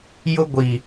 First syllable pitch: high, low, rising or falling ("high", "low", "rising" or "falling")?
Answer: high